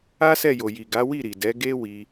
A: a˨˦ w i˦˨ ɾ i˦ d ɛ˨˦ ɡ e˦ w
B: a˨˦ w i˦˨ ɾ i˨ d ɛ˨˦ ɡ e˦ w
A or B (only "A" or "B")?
B